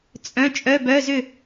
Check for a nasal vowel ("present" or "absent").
present